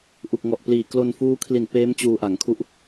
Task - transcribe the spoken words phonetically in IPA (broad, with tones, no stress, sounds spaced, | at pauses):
ʔ u˨˩ k̚ ŋ ɔ˨˩ ʔ p l iː˨˩ k l o˧ n f uː˦˥ kʰ l i˨˩ n p eː˦˥ m t͡ɕ uː˧ ʔ a˩˦ ŋ kʰ u˦˥ ʔ